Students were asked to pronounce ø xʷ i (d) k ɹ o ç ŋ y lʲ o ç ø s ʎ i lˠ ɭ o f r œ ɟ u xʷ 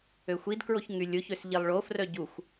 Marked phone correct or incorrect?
correct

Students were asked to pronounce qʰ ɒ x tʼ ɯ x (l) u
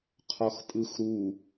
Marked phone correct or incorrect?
incorrect: ɾ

